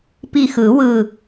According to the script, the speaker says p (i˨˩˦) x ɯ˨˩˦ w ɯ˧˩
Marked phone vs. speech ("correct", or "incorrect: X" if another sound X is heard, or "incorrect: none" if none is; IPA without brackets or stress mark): incorrect: i˧˩